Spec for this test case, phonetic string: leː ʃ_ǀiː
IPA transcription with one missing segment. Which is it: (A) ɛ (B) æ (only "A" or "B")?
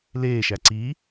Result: B